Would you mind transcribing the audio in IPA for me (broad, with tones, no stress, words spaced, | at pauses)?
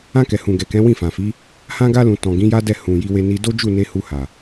ã˧kɛ˨hũ˨ɡɛ˨ kɛ̃˨˦wĩ˦˨fã˨fi˨˦ | hã˧ɡa˧lũ˨ tɔ̃˨ ɡĩ˨˦ja˦dɛ˦˨ hũ˨ ji˧we˧ ni˧ do˦d͡ʒu˦˨ne˧ hu˧ha˨